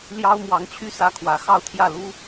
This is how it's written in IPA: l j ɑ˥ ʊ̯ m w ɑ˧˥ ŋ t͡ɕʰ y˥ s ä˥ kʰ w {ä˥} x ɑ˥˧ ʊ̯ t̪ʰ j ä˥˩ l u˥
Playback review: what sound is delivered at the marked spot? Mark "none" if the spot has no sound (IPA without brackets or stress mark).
ä˧˥